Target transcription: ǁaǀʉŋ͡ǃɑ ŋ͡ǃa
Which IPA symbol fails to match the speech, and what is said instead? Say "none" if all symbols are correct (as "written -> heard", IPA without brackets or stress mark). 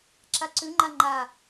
ɑ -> a